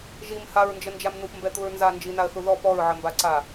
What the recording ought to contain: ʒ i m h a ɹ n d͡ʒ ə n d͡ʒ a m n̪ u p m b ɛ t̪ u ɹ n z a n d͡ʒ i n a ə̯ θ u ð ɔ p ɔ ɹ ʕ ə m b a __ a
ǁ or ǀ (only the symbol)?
ǀ